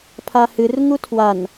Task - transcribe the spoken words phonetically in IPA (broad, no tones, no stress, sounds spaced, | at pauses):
pʰ a h ɨ r ŋ u tʰ w a n